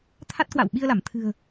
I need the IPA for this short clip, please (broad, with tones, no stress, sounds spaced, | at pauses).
t̪ʰ a˦˥ t̚ k w a̰˧˨ w ɓ i˧ ə̯ l a˧˩ m t̪ʰ ɨ̤˨˩ ə̯